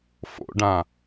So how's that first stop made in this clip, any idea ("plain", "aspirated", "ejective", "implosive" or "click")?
plain